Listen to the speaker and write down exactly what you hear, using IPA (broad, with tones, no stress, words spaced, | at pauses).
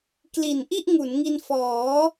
kli˨˩nʔi˥˩ʔŋu˩˦nŋi˧n fɔː˩˦